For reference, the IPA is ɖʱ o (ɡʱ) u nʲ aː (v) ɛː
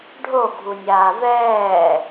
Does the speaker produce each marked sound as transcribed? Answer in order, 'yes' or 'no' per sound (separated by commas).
yes, yes